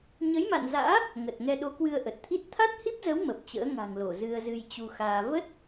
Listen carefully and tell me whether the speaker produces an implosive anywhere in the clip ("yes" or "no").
yes